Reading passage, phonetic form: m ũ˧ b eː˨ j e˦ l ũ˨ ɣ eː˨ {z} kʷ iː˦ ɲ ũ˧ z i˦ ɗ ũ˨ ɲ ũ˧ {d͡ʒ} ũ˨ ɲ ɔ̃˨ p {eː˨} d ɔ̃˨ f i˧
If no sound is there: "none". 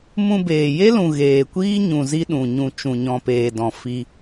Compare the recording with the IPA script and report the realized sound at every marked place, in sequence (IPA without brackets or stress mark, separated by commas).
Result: none, t͡ʃ, eː˨